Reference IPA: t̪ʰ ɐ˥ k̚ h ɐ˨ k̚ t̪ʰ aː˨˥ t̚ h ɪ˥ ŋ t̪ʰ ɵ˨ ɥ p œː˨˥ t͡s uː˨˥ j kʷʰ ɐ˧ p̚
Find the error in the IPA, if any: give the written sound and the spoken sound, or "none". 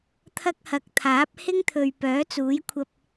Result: t̚ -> p̚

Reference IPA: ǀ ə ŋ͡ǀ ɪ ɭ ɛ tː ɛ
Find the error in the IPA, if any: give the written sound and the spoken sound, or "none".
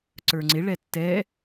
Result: ə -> ə˞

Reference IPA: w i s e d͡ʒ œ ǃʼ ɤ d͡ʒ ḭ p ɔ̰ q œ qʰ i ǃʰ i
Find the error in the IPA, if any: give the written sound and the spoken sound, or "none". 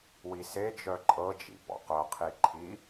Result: none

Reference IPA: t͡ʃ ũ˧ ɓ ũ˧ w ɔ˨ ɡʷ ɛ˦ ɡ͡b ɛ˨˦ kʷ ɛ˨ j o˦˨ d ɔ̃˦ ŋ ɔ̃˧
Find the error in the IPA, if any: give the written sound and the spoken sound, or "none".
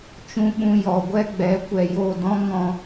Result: w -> j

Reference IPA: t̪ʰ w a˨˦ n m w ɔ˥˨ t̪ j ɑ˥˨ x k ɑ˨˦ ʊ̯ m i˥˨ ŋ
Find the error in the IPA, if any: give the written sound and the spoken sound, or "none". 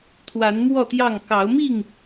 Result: x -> ŋ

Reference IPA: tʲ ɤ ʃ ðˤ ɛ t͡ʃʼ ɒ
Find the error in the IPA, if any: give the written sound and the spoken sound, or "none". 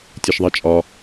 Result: none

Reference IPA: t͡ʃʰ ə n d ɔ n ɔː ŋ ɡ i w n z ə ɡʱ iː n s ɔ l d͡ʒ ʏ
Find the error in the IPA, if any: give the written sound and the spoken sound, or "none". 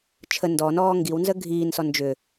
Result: l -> n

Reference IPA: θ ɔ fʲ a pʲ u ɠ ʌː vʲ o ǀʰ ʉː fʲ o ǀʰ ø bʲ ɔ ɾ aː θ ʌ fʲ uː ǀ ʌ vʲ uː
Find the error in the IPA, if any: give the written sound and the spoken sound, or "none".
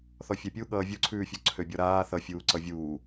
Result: none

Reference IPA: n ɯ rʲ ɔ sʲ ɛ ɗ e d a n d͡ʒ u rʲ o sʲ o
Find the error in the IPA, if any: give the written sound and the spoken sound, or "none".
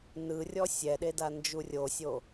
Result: none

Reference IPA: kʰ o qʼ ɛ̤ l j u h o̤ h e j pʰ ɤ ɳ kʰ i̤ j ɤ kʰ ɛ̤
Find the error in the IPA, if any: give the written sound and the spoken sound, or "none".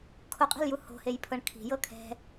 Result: none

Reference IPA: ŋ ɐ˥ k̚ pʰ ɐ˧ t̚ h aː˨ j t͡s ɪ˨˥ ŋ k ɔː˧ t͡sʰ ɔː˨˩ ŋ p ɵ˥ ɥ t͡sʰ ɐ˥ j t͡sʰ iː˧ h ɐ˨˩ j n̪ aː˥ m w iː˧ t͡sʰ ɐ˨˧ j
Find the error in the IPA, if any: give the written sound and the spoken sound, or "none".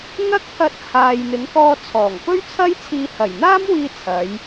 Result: t͡s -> n̪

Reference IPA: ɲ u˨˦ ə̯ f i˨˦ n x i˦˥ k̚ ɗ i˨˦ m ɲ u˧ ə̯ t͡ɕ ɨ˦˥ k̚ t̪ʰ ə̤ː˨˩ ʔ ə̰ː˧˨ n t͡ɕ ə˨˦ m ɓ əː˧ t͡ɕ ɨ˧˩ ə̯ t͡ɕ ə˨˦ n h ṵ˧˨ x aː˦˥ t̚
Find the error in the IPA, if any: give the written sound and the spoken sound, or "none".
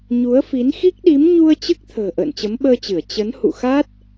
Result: none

